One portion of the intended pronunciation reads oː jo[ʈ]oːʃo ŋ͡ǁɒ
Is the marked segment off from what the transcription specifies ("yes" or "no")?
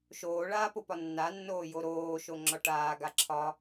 yes